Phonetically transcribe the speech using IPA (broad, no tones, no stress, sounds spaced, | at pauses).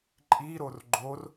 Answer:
ǃʼ i ɾ o r ɡ͡ǃ o r